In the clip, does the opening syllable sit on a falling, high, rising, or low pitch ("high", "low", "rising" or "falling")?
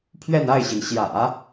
falling